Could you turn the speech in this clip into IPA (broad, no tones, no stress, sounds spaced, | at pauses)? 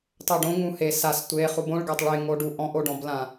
tˤ o ɖ õ ŋ ũ h e s a s tʷ e χ u b õ ɭ ɡ a tˤ ɭ e ŋ o ɖ u ʔ ɔ̃ ʔ o ɖ ɔ̃ b l ã